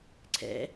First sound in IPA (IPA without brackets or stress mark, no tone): ǀʰ